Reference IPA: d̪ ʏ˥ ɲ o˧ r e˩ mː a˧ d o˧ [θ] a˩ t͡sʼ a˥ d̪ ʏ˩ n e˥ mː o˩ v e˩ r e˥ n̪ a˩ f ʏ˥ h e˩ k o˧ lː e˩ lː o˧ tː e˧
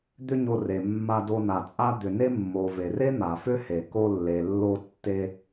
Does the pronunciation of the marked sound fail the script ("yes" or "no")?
yes